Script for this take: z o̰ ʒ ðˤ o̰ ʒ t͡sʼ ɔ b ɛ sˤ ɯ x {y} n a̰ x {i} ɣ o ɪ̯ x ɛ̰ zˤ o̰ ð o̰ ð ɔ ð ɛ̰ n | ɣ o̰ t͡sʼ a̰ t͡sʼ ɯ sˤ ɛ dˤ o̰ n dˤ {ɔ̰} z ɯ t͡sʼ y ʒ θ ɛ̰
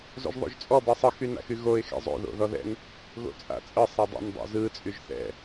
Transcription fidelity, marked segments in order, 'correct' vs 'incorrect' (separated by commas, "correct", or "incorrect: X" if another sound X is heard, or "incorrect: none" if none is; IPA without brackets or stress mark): correct, incorrect: y, incorrect: o̰